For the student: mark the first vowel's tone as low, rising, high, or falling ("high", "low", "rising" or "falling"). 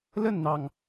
falling